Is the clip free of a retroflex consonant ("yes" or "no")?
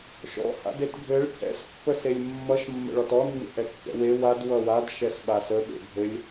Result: no